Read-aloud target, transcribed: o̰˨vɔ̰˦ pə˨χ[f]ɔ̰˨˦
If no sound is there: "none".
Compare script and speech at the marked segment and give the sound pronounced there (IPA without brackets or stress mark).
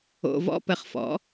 f